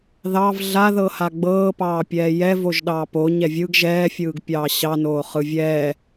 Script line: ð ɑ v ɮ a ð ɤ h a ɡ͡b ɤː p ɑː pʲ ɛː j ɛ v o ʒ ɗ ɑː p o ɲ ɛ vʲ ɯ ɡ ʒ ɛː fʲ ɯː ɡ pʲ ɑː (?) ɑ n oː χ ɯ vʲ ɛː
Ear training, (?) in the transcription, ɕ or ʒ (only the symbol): ɕ